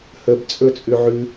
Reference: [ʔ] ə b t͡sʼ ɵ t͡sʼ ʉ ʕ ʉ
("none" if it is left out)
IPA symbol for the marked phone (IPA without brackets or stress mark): h